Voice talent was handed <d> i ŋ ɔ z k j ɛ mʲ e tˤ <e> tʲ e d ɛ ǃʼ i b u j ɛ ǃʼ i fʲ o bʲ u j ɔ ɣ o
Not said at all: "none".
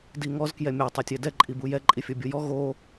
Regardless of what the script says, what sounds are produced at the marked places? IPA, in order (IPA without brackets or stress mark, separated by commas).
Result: d, e